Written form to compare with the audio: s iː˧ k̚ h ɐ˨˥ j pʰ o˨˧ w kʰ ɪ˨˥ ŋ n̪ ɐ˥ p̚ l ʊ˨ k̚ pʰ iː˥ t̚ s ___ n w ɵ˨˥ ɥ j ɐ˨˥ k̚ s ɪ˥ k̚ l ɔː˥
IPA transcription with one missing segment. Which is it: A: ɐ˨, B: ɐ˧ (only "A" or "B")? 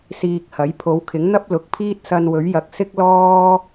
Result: B